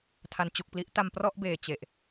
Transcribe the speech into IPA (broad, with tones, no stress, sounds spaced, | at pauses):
tʰ a˩˦ n t͡ɕ u˨˩ k̚ p l i˦˥ ʔ t a˧ m p r ɔ˥˩ ʔ b eː˨˩ t͡ɕ e˨˩ ʔ